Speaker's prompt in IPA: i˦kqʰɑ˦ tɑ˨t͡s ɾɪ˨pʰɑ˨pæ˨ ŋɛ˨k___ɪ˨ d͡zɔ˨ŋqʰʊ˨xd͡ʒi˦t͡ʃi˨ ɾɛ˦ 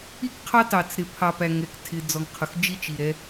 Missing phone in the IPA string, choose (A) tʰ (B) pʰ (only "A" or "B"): A